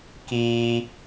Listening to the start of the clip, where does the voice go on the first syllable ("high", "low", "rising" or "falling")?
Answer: high